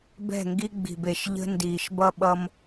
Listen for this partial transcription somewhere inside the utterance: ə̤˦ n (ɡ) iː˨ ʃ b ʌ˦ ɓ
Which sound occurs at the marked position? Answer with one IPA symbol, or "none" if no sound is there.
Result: d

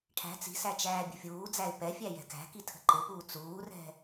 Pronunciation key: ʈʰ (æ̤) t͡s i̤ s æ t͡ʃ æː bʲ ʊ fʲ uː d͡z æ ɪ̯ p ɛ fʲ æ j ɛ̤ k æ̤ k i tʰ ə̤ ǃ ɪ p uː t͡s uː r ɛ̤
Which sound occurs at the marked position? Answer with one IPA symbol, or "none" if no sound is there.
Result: æ̤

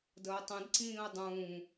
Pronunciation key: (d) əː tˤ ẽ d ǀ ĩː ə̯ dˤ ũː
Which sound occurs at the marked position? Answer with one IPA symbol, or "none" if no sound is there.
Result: d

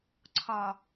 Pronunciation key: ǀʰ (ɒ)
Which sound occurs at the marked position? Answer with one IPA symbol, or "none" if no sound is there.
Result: ɒ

